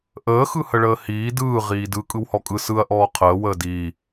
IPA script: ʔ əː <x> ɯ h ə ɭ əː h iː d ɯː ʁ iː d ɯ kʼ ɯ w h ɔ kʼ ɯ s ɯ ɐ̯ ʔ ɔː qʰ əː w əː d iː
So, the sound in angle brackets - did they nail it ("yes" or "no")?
yes